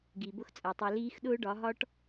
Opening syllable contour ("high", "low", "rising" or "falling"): low